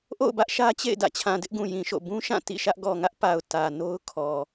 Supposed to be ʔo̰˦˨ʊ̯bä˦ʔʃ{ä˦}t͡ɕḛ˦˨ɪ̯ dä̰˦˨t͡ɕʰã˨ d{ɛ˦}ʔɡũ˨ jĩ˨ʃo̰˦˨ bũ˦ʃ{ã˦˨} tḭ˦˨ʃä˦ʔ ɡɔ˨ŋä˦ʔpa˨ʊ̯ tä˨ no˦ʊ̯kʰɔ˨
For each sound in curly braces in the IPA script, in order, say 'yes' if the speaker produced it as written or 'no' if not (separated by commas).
yes, no, yes